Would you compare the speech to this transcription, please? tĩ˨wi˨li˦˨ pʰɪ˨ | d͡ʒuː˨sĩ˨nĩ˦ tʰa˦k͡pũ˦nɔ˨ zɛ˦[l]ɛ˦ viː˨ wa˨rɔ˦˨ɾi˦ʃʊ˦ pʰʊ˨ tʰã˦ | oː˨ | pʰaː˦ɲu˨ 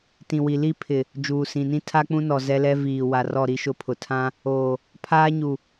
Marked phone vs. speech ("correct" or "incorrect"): correct